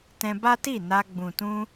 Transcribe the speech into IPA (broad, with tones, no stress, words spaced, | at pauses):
tɛ̃˧ba˦ti˦˨na˧ ɡ͡bũ˨tũ˧